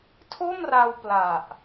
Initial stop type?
aspirated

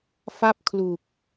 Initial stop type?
plain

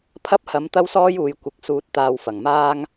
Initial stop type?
aspirated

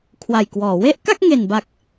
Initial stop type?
aspirated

